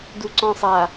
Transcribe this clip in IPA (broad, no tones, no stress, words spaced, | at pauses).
duǀɔ̃sˤa